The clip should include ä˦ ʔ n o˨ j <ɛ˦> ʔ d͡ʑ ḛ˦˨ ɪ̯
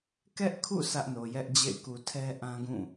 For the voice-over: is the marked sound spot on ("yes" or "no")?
yes